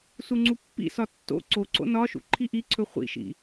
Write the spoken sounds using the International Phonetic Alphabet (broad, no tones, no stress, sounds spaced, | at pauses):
s u ŋ͡ǀ u pː ḭ s ɒ tː o̰ ǀ o ǀ o̰ n ɒ ʃ ṵ ǃʰ i ʔ i ǀʰ ɵ χʷ ḭ ʃ ḭ